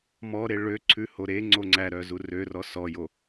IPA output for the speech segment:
m ɔ ɾ e ɭ ø ǀʰ ʉ h o ɾ e ŋ͡ǀ o ŋ͡ǀ æ ɾ œ z u r ø r ɔ s ɔ j o

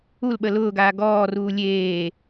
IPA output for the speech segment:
u l ɓ ə l ʊː ɡ aː ɡ ɔː r uː lʲ eː

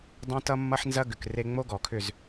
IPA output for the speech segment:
dˤ õ˦ t ʌ˦ mː ʌ˦ ħ n z ɐ˦ ɡ ʏ˨ k r e˦ ŋ͡m o˦ ɡ ɔ˨ kʰ ʏ˦˨ z

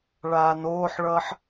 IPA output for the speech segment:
ɭ aː n oː ħ ɭ ʌː ħ

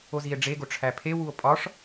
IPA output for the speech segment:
o z i e̯ ɖ͡ʐ e ɡ o ʈ͡ʂʰ æ pʰ e w u o̯ pʼ ɒ ʂ

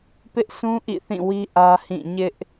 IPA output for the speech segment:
p ɪ˦ ʔ sʰ ũ˦ ʔ ḭ˦˨ θ ĩ˦˨ w i˦ ʔ ä˦ h ĩ˦˨ ɲ ɪ˦ ʔ

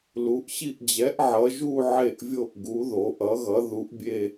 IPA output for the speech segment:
l u˩˧ ʔ ɕ i˦˨ ʔ d͡ʑ ɛ˩˥ ʔ ʕ ʌ˩˧ ʒ u˦˨ ʕ e˦˨ ʔ vʲ o˦˨ ʔ ɡ u˩˥ ð o˩˧ ʔ ʌ˩˥ ɣ ʌ˩˥ ð u˩˥ ʔ bʲ e˦˨

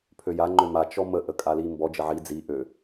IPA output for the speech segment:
pʰ ø j a ŋ͡ǃ ø m a t͡ʃ ɔ m ə ʔ ə kʼ a l i m b ɔ d͡ʒ ə ʕ i d͡z i ʔ ø

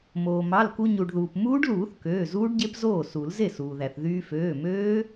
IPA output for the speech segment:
m oː˩ m ɑ˩˧˩ l k u˧ ɲ u˩ ɖ ð uː˩ p m uː˦˥ ɖ l uː˨˩˦ θ k øː˩˧˩ z uː˦˥ ɖ ɟ e˦˥ p z oː˥˩ s u˨˩˦ l z e˥˩ s uː˩ ð æ˩ θ ð yː˧ f øː˩˧˩ m øː˦˥

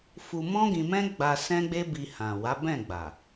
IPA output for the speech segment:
f u˧ m ɔ̃˦ ɡ ĩ˧ m ɛ̃˦ ɡ͡b a˧ s ɛ̃˦ ɡ͡b e˦ b i˧ h ã˨ w a˨˦ b ɛ̃˦˨ ɡ͡b a˨

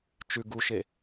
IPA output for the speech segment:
t͡ʃ ʉ ɡ u ʃ e

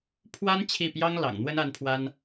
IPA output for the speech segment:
pʰ w a˥ n t͡ɕʰ i˥˩ p j ɑ˥ ŋ l ɑ̰˨˩ ŋ n̪ w ə˥ n a˥ n pʰ w a˥ n

